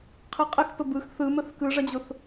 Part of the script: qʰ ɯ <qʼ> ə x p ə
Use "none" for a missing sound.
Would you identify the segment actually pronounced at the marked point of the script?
qʼ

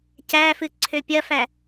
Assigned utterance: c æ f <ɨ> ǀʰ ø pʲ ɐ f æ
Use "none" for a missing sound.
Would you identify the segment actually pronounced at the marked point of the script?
ɨ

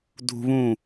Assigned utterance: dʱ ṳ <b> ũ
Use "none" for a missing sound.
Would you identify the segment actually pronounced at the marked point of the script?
β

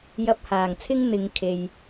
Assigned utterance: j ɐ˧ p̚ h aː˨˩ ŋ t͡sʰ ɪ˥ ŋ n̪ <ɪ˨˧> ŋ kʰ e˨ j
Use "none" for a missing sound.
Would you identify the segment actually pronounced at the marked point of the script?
ɪ˨˧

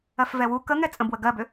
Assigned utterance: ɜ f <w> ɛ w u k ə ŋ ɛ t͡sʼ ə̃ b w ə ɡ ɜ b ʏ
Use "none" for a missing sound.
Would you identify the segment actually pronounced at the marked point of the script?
v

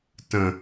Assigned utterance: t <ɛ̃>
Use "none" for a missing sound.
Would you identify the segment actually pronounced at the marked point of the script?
ə̃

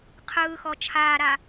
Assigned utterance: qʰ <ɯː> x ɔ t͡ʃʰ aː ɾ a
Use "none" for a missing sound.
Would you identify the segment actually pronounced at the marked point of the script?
ɯː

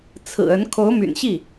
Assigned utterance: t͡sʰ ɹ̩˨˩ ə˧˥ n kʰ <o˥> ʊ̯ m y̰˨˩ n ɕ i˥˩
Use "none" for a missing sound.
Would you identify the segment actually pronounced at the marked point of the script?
o˧˥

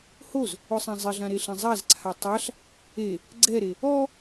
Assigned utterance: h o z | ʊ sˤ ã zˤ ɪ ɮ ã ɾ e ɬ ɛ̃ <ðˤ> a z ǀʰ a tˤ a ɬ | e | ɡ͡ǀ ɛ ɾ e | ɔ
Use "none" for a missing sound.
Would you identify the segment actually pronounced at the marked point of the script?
zˤ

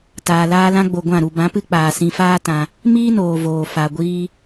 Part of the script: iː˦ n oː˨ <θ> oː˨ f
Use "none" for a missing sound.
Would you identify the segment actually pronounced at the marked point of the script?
v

